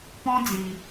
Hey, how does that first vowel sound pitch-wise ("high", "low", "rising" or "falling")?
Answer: high